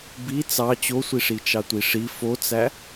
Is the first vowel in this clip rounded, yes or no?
no